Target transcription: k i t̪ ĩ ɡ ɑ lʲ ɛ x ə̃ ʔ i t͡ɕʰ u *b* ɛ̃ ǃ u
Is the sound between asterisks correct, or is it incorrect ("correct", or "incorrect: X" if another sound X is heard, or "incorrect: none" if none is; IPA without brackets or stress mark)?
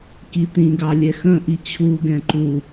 incorrect: ɡ